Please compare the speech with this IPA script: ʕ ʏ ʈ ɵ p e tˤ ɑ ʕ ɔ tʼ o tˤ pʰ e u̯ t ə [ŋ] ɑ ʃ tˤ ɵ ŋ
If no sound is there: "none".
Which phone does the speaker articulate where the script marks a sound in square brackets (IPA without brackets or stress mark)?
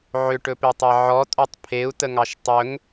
ŋ